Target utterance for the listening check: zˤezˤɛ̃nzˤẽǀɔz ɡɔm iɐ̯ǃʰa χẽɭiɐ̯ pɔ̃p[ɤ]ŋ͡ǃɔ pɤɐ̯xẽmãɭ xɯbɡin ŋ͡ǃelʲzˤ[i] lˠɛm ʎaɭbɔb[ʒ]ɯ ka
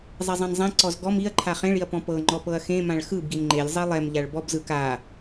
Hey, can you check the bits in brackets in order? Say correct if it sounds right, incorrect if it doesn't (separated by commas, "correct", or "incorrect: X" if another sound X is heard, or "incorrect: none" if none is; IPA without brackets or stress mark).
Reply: correct, correct, incorrect: z